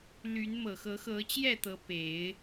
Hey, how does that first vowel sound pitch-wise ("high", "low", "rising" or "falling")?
rising